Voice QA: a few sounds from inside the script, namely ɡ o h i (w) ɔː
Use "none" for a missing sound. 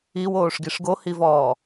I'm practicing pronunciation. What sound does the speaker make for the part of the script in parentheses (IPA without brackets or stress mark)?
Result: v